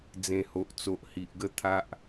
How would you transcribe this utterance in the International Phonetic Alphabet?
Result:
d͡z ẽ˨˩ h o˨ ʔ t͡s o˨ ʔ h i˨ ʔ ɡ ə˥˧ t̪ʰ a˦ ʔ

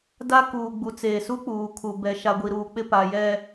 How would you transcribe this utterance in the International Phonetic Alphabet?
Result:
d a˦ k uː˨ ɡ͡b u˨ t͡s eː˨ s u˦ k͡p uː˨ kʰ u˨ b ɛ˨ ʃ a˨ ɡʷ i˨ ɾ uː˨ k͡p ɪ˦˨ p a˨ j ɛ˨

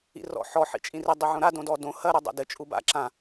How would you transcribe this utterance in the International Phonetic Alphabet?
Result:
ḭ r ɔ̰ ħ ɔ ħ ḭ t͡ʃʼ ĩ r i dˤ u ʕ õ ɾ a d õ d ɔ d õ h ɐ ɾ o dˤ a̰ d ɘ t͡ʃʼ u b a̰ ǁ ã

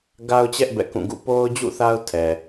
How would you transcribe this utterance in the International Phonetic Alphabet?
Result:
ɡ a˦ ʊ̯ t͡ɕ ɛ˦ ʔ b ɛ̰˦˨ k ũ˦˨ ɡ ṵ˦˨ p o˦ ʊ̯ d͡ʑ ṵ˦˨ θ a˦ ʊ̯ tʰ ɛ˨

